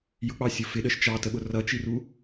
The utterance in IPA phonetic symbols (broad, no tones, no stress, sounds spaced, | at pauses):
j ʊ k͡p ɑ sʲ ʊ f ɪ ɗ ə ʃ t͡ʃ ɑ t ə ɓ ʊ r ʌ t͡ʃ i r u